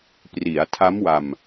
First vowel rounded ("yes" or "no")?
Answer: no